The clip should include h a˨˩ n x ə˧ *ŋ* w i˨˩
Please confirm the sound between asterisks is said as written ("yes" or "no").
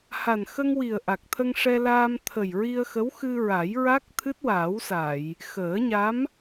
yes